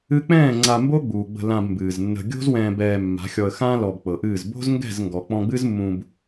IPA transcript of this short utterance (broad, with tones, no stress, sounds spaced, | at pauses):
ɨ˦ k͡p ɛ̃ː˦˨ ŋ͡ǀ a˧ m b o˦ ɡ͡b uː˨ ɡ͡b ə̤˧ l ã˧ b m b ɨː˨ z nː ə̤˧ ɡʲ o̤˦ z w ɛ̃ː˧ b ɛː˧ mː a̤˨˦ xʲ ɔ˧ ə̯ x ãː˦ l ɔ˧ b k͡p ɤ˨ ʔ ɨː˦˨ z b o̤˦ z ŋ ɡ ɛ̤˦˨ z ŋ ɡ ɔ˨ k͡p ɔ̃˧ ɡ͡b ɨ˦ z mː ũ˧ b